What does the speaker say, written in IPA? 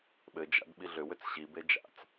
ɓ ɘ d͡ʒ a̰ d ɓ i ɮ ʏ w ʏ t͡s ɕ i b e d͡ʒ a̰ t͡s

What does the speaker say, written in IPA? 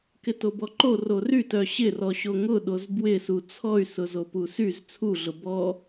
k ɪ t o b ɔ ǃ o r o r y t œ ɕ ɪ r ɔ ɕ o ŋ ʊ ɗ o z b w ɪ s u t͡sʰ ɔ y̯ s ʊ z o p u s y z t͡sʰ u ɮ ʊ b ɔ

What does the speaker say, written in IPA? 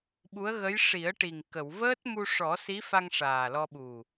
ɓ u˧˥ ə̯ ɣ ə˧˥ j ʂ i˨˩˦ ə̯ ʈ i˨˩ ŋ k ə˨˩˨ w v əː˦˥ t̚ m u˧ ʂ ɔ˨˩˦ s i˧˥ f a˧ ŋ ʂ aː˨˩ l ɔ˧ ɓ u˨˩

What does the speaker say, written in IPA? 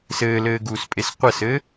s ɘː l ɘː ɡ uː s pʼ e s qʷ ə s ɘ

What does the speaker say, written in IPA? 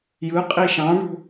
j ɯ qʼ i ʃ ɑ̃ ɳ ṳ

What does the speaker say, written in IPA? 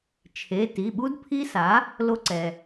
t͡ʃʰ e˩˧˩ t i˩˧˩ ɓ u˦˥ d pʰ i˦˥ s a˩˥ | l o˧ ǀ ɛ˩

